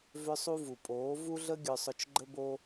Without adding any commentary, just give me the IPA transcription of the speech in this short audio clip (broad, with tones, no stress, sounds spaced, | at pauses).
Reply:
v ʏ˧ sˤ u˧ v u˨ pʼ oː˨˦ v u˦ ɮ ə˦ ɡʲ œ˧ sˤ ʊ˧ t͡ʃ ɡ͡ǃ ə˦ b o˦